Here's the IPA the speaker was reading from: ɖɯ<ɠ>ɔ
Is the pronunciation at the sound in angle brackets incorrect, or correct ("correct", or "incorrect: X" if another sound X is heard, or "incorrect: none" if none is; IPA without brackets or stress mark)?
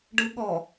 correct